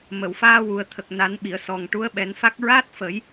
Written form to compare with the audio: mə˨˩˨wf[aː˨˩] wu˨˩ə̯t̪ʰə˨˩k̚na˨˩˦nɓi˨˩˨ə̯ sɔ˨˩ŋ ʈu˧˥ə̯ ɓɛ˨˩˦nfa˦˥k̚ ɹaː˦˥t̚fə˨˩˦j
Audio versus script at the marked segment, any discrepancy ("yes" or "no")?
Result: yes